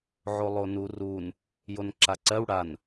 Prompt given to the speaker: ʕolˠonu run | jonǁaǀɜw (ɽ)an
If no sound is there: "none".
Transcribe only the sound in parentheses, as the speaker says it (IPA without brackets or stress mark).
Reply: ɽ